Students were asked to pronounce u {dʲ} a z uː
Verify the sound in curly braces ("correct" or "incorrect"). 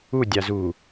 correct